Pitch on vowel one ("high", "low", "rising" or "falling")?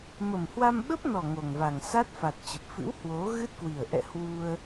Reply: low